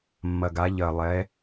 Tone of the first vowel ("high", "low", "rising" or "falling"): low